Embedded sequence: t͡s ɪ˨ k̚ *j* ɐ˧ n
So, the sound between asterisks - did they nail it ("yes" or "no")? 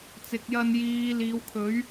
yes